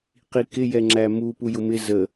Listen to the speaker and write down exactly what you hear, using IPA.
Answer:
q i k ɪ j ɛ ŋ͡ǁ æ m u p u j ʊ m ɪ z ə

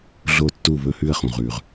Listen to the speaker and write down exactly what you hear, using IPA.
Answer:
ɮ o˦˨ tː u˦˨ β ɵ˦˨ h ʉ˦˨ ə̯ χ ũ˩ ʁ ʉ˩ ʁ

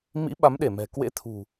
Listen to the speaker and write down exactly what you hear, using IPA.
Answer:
m ḭ˧˥ ɓ a˨˦ m ɗ e˧˩ m ɛ̤˨˩ k w ḛ˧˥ t̪ʰ ṳ˨˩

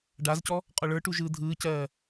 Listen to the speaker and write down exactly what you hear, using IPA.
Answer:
ɖ a z c ɔ | qʼ ɔ ɭ ə˞ ʈ u ʒ ɯː dʱ ɯː c ɜː

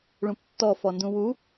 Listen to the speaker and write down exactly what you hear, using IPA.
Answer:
ɭ ũ p tː ɔ f ɔ n d ũ w u

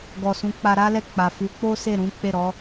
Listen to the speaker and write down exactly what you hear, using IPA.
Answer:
ɡ ɔ˨ s ũ˨˦ k͡p a˧ ɾ a˦ l ɛ˦˨ k͡p a˨ f u˨˦ k͡p o˦ s e˦˨ ɾ ũ˨˦ k͡p e˦˨ ɾ ɔ˨˦

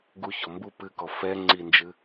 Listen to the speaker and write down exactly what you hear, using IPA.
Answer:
ɡ u ç ɔ m b u p ɨ k ɔ f ɛ ŋ͡ǀ i n d͡ʒ ɨ

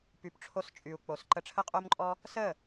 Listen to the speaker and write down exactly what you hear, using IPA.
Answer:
p y˨ p ʈ͡ʂʰ o˧ s t͡ʃʼ y˨ u̯ k͡p o˨ s ǃ ə˧ ʈ͡ʂʰ ə˦ qʼ o˦ m ǃʼ ɔ˦ | s ə˦˨

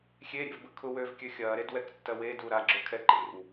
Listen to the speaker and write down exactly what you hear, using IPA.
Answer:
xʲ e ɾʲ ḛ v b ə kʰ ʊ w øː v kʲ ø xʲ ɐː ɾ e d w ɛ k tː ɐ w e d u ɾ a ɡ͡ǁ ø kʰ ɛ ǃ ḛ w

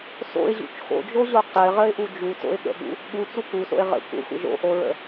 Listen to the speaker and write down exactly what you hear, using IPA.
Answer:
s o̰ ɪ̯ ʑ ṵ t͡ʃ x o̰ d͡ʒ o ʑ o q ɘ ʁ ə ɪ̯ ʔ u d͡ʒ u t o̰ ɪ̯ ɠ ə̰ ɠ ṵ | ɠ u t͡s u k u s o̰ ɪ̯ ʁ ə̰ kʷ ə̰ xʷ ə̰ ʒ o̰ ʔ o ɹ ə̰

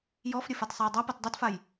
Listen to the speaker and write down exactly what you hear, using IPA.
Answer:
j ɔ f ɾʲ ə f a t sˤ a j dˤ a p a t dˤ ɛ t f a j

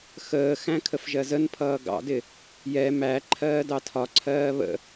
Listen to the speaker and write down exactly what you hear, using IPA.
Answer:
x əː x æ̃ kʰ ə f ʒ ɜ z ə n pʰ ʌː ɡ ɑ̰ d ɪ | j ɛ m æ ǃʰ ɜː d ɑ tʰ ɒ ǀʰ ɜː β ə̰

